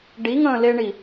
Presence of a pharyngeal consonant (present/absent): absent